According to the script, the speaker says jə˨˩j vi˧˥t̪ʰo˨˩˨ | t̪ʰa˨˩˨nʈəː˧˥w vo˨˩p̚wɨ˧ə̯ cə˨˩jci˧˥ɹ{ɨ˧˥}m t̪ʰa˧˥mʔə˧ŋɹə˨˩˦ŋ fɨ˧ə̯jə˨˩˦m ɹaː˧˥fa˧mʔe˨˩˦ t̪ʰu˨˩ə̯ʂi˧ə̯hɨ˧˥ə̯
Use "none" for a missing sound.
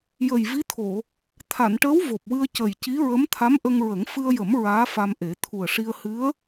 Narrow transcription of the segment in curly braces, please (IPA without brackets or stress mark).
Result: ə˧˥